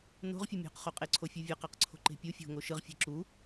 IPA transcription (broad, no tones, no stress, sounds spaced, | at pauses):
n o̤ ʁ fʲ ɯ mʲ o̤ q χ o qʼ e ǀʰ o fʲ ɯ vʲ ʌ q a q ǀʰ o̤ ǃ e̤ pʲ u fʲ o̤ ŋ o ʃ ɯ ʁ fʲ e̤ ǁ u